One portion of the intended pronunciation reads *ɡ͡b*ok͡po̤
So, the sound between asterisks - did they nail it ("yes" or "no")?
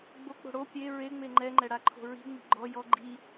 yes